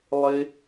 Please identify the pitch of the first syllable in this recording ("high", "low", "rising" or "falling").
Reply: high